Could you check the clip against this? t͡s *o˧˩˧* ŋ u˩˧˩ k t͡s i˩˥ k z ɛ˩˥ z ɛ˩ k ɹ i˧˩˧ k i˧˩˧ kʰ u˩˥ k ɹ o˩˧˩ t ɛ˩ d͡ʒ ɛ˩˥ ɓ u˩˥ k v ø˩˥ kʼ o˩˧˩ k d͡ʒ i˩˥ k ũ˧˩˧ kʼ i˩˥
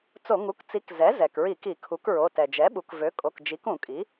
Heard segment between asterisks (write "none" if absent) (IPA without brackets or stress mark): o˧˩˧